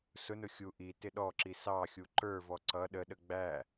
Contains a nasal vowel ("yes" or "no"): no